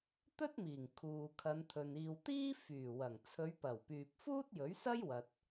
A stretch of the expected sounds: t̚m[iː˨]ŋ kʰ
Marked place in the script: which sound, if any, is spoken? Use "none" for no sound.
iː˨˩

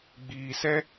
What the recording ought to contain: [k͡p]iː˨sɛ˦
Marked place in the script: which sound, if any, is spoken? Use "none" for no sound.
ɡ͡b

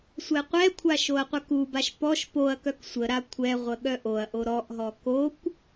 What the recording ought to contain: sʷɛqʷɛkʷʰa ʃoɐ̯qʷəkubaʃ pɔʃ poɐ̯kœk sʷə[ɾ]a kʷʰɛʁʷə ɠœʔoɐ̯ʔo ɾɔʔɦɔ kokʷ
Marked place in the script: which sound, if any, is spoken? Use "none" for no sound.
ɾ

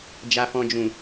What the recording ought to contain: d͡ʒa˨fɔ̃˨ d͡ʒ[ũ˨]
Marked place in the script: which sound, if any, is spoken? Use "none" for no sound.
ũ˨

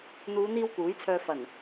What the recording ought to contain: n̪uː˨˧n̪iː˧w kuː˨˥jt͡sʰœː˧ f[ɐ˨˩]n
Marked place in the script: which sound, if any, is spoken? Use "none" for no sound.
ɐ˨˩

